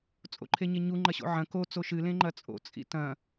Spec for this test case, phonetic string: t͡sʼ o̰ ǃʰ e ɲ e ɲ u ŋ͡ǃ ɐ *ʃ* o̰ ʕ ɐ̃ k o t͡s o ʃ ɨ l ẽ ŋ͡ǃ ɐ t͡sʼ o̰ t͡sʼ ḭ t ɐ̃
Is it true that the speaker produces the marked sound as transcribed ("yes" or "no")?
no